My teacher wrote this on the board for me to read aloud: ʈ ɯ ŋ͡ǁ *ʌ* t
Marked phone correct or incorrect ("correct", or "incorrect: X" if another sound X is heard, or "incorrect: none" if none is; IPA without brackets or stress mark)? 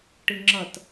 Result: correct